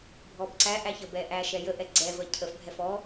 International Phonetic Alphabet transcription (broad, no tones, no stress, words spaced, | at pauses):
bʱɔbǀæʔæç əbɛ ʔæʃɛ jəʔɛ ɡ͡ǀɛvə cʰəfbʱɛf ɔ